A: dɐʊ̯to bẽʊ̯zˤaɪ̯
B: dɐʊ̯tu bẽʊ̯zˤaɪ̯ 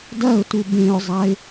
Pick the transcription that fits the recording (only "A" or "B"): B